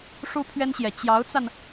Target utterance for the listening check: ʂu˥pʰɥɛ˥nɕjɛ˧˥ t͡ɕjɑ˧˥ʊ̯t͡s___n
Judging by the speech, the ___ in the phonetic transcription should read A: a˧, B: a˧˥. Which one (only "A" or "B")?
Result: A